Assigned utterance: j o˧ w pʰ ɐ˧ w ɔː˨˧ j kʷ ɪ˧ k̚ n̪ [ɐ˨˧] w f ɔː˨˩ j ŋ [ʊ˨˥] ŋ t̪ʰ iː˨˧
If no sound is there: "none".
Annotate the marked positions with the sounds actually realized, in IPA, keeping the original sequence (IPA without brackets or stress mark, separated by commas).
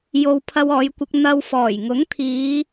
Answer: ɐ˧, ʊ˨˥